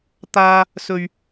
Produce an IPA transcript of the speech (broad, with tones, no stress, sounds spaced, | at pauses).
t̪ aː˧ | s ɵ˨ ɥ